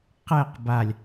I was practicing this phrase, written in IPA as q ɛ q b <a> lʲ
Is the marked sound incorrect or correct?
correct